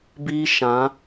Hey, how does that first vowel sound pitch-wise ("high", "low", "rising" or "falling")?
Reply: high